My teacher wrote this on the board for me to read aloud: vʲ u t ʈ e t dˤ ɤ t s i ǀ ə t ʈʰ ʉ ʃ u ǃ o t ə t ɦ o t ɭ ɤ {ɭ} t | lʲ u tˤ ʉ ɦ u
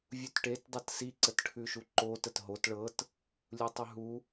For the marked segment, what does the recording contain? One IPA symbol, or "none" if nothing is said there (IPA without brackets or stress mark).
none